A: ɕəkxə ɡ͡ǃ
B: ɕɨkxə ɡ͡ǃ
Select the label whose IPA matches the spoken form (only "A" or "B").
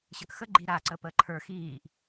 A